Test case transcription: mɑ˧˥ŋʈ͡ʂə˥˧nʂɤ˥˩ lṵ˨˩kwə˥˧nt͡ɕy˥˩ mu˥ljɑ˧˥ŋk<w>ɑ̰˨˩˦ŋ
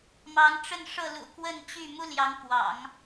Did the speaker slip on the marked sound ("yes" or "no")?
no